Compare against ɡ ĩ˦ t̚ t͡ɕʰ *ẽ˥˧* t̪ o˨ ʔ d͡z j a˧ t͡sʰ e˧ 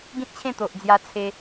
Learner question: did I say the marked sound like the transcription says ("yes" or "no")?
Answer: yes